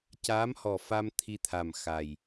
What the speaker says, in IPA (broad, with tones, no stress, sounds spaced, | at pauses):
c aː˧˥ m h ɔ˨˩ f a˧ m t̪ʰ i˧ t̪ʰ a˨˩ m x a˨˩ j